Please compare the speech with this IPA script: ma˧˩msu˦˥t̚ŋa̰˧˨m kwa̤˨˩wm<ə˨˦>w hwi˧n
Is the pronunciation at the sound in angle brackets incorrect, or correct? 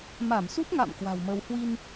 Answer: incorrect: ə˧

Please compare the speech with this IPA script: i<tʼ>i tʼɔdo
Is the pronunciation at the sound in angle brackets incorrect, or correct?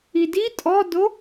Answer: incorrect: d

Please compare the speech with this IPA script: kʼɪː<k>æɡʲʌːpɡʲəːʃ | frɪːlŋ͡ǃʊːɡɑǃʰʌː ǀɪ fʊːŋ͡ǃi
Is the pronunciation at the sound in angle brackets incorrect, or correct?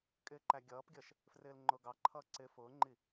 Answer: incorrect: ǃ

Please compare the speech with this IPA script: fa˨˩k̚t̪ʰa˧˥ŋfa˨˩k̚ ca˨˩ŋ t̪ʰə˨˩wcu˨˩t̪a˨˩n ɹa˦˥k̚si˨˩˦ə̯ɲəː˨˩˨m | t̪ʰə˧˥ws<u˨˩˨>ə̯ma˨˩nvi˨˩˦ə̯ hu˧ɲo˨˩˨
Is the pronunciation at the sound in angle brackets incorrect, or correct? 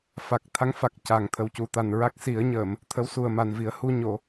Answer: incorrect: u˨˩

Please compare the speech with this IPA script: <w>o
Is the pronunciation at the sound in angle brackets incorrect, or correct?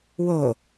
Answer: correct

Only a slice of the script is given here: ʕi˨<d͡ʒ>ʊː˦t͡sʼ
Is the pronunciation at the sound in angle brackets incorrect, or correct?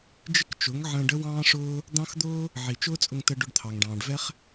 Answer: incorrect: t͡ʃ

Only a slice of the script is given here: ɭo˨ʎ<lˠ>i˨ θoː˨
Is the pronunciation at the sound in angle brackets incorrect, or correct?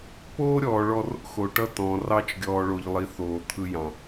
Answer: correct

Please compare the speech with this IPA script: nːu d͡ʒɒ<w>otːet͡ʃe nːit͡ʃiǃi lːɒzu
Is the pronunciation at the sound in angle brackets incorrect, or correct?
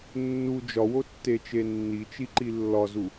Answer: correct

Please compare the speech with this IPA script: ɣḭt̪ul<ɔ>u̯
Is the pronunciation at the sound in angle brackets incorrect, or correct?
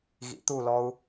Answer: correct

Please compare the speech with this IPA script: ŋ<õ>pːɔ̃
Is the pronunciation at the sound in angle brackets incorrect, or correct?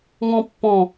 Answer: incorrect: ɔ̃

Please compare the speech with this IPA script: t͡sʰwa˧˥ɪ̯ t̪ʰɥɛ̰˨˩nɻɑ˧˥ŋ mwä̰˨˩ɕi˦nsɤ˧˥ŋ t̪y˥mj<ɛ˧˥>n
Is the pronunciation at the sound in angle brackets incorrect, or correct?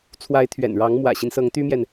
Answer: incorrect: ɛ˨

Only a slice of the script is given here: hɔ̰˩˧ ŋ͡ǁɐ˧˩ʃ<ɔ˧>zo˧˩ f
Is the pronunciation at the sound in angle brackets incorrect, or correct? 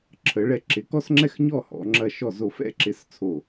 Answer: incorrect: ɔ˧˩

